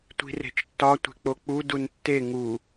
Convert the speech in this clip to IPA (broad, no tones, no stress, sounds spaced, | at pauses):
tʷ i̤ r e̤ t͡ʃ tː ɒ tʷ e̤ k͡p o k͡p u d u n tː e ŋ u